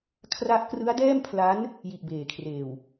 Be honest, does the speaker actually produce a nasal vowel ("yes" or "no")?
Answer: no